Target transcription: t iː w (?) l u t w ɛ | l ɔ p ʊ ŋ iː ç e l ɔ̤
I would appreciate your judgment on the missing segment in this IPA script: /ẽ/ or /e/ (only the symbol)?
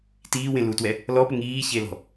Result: ẽ